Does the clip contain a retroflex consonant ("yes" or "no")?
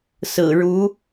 yes